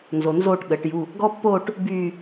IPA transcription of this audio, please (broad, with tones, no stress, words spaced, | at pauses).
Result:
nzo˨nzoː˥˧ʈ ɠəː˩˥ʈju˧˥˧ | ɡɔ˥pːoː˥˧ʈ | byː˥˧